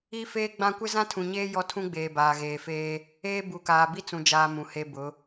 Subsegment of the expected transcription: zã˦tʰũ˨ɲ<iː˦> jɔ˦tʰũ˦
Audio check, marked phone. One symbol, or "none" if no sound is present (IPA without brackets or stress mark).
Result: eː˦